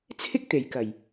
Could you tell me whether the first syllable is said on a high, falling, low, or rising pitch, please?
high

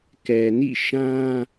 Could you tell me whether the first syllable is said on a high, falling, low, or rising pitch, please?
low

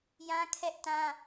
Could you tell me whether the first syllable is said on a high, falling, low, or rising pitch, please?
high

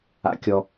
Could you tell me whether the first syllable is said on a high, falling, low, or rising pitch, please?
high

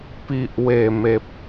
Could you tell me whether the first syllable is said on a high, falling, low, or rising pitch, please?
low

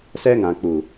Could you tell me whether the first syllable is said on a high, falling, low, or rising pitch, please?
high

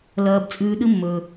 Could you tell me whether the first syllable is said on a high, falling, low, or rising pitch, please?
high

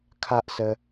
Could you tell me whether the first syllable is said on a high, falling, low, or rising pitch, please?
high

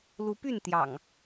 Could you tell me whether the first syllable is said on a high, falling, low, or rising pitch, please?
rising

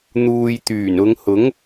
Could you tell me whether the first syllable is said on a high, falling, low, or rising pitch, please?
low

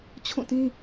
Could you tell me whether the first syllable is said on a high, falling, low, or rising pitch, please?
falling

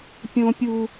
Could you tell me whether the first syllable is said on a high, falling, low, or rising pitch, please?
high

